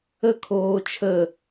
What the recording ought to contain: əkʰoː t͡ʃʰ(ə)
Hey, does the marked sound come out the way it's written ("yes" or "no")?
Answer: yes